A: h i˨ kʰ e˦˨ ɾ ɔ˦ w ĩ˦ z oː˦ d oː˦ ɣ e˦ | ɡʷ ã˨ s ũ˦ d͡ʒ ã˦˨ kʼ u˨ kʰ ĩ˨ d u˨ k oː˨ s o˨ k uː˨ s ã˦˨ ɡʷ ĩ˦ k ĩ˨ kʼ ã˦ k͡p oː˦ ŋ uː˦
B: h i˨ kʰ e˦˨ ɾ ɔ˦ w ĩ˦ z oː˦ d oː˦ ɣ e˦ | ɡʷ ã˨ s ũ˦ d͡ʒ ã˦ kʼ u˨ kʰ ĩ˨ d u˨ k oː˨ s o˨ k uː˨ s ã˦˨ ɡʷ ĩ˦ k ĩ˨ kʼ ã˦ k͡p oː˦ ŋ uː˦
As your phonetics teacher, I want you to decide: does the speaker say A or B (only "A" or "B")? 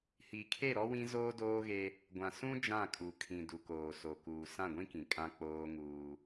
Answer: A